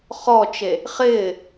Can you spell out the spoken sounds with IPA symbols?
χ ɔ t͡ʃ e | χ ɪː

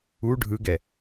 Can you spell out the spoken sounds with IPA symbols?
u ɖʱ ɯ ɡ ɛ

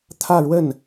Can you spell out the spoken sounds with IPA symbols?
t̪ʰ ä˥˧ ɻ w ə˥˩ n

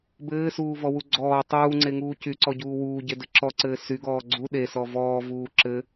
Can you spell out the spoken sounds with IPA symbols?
b ɘː s uː v ɔ w u ɡ͡ǀ ɔː tˤ uː ŋ͡ǀ e ŋ uː c y ǀ ɔ ɟ uː w uː ɟ e d ɘ ǁ ɔ ǀ ɘː s y ɡ ɔː ɡ͡ǀ u ɗ e s ɔ v ɔː v uː ǁ ɘ

